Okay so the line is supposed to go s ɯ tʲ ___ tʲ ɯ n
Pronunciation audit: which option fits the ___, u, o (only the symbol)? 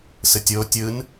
o